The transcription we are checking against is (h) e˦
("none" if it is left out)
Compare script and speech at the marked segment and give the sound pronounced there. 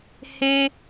h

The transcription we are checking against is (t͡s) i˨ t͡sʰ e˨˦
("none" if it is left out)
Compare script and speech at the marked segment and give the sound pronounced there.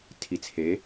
tʰ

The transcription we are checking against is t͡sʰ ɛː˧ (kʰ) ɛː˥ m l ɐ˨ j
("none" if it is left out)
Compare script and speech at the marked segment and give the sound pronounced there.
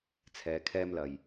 kʰ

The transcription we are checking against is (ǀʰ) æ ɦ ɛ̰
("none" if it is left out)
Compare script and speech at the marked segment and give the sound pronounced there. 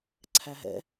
ǀʰ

